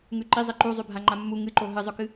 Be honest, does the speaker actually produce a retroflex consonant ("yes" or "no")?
no